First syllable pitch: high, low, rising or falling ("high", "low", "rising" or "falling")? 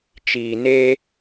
low